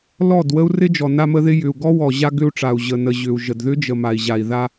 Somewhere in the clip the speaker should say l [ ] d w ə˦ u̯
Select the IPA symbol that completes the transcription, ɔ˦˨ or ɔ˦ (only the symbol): ɔ˦˨